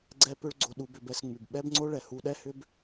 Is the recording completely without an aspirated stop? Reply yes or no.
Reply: yes